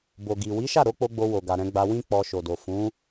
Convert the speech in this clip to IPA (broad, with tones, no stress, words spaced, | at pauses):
bo˨ɡi˨ wi˨˦ʃa˦˨ɾo˨˦k͡po˧ ɡ͡bo˧wo˨ɡa˨ɾɛ̃˧ ɡ͡ba˧wĩ˦ k͡pɔ˧ ʃo˨do˨ fũ˨˦